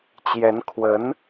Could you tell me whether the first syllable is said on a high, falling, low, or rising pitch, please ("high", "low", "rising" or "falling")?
rising